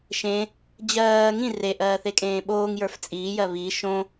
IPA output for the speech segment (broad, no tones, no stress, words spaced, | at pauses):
ʃẽ | d͡ʑɜː ŋĩ reʔɜː θekʼẽːɓoːŋjə˞f t͡sʼiːjɜ βi ʃõ